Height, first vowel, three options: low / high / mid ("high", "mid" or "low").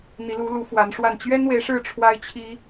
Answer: high